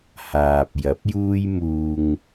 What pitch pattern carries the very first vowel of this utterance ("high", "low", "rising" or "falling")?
low